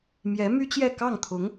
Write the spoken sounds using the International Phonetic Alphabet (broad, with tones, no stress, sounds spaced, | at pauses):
m j ɛ˧˥ m y˥ t͡ɕ j ɛ˥˧ k ɑ˥˩ ŋ t̪ʰ ʊ˧˥ ŋ